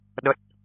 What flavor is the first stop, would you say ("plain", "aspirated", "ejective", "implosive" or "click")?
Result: implosive